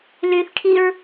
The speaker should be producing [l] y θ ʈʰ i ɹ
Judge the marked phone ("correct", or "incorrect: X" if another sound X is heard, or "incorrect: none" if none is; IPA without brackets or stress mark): correct